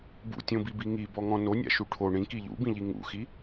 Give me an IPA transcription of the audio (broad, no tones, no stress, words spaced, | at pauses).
bṵtʲõbibi ŋibɔŋɔ̃ nonʲa̰ʃu ʈʰo ɳĩki ʎṵbĩʎi ŋṵxi